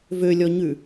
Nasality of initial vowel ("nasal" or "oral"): oral